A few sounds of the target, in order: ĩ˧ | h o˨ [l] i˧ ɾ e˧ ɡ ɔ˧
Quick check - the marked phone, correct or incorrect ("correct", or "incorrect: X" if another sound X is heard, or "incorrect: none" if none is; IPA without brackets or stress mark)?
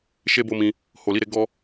correct